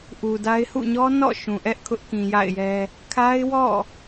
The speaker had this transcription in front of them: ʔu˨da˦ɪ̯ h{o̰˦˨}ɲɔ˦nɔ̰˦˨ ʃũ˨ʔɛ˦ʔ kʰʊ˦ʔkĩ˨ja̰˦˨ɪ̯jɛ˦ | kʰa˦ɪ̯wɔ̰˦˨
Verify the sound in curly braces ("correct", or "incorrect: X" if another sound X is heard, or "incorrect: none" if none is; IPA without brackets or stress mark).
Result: incorrect: ṵ˦˨